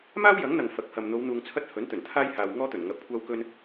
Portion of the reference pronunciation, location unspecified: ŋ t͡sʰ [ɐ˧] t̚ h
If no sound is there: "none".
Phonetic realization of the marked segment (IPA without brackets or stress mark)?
ɐ˥